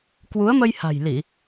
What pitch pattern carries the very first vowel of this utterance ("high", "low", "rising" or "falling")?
rising